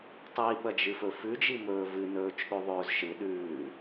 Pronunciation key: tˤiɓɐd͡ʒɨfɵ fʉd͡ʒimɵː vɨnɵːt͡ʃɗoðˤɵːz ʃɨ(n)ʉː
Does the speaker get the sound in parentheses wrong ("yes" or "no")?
yes